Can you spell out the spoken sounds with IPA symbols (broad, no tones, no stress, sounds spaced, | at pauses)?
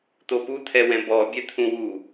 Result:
t̪ o p u t̪ʰ ɛ w ɛ̃ b ɔ bʲ ɛ t̪ʰ ũ w u